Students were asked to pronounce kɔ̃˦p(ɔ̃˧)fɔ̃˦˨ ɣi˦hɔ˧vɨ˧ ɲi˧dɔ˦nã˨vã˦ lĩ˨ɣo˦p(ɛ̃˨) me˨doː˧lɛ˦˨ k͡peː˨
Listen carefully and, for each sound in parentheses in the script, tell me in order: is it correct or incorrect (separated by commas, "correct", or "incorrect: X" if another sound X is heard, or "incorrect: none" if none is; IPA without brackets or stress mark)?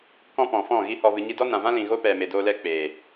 incorrect: ɔ̃˨, incorrect: ɛ˨